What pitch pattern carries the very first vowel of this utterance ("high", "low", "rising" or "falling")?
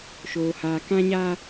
low